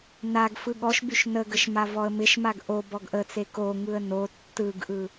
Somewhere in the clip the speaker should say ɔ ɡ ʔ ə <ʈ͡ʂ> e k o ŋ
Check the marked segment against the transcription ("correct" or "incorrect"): incorrect